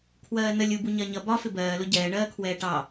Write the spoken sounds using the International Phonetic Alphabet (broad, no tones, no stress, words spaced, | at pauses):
kʰwɜːnəlʲ ubu ɲɜɲʌ bɒ fɪbɜːlʊ ɟɛːɳɜːkʰwɛː ʈɑ